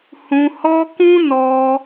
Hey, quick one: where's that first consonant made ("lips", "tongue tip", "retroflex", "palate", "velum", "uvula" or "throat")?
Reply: throat